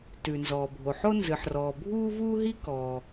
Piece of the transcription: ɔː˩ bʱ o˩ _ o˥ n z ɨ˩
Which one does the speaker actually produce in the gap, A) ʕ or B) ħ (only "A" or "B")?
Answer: B